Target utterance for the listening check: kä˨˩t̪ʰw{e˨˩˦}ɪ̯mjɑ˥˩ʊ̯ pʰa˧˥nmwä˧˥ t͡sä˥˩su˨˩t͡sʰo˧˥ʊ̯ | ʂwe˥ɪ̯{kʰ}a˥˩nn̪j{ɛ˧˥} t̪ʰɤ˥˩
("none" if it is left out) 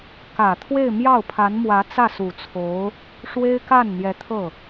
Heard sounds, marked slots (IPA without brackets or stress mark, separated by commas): e˥˧, k, ɛ˧˥